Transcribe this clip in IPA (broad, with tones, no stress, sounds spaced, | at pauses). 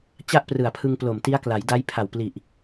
t͡ɕ a˥˩ ʔ p r ɯ˨˩ a̯ pʰ ɯ˧ ŋ p l o˨˩ m t i˦˥ a̯ k l a˩˦ j d a˦˥ j pʰ a˨˩ w p l i˨˩ ʔ